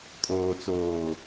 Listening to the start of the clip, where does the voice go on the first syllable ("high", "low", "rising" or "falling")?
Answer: low